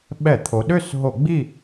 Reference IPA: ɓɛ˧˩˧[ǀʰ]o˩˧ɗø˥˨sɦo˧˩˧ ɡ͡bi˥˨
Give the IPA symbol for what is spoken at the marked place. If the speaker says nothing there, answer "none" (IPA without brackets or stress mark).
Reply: t̪ʰ